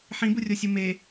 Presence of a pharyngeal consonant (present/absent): present